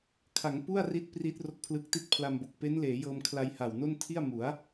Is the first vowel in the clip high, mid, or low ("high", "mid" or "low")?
low